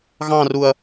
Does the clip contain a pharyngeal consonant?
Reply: no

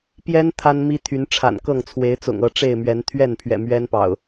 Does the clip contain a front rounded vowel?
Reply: yes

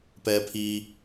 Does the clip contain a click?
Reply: no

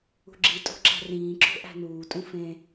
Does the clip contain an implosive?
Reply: no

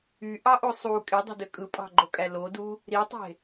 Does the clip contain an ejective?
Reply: yes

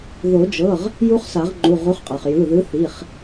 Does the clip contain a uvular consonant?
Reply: yes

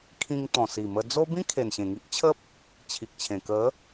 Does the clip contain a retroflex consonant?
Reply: no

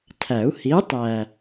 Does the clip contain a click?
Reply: no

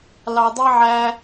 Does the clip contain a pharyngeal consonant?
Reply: yes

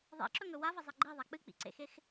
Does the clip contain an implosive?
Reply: no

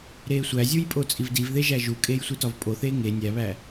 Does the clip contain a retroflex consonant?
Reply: no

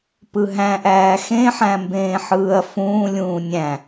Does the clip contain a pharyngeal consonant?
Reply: yes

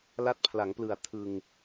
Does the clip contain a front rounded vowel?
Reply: no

